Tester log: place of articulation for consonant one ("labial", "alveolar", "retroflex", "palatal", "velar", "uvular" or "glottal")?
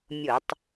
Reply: labial